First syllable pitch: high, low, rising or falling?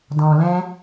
low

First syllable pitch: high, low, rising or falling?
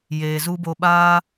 low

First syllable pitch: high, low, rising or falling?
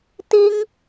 high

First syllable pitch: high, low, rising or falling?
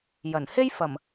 low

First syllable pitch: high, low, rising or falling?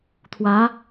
rising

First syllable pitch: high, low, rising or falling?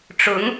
rising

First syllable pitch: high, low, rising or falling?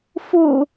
low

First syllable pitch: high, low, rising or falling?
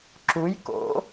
rising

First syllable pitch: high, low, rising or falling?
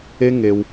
high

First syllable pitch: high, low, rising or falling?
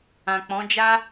low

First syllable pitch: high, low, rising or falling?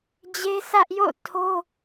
high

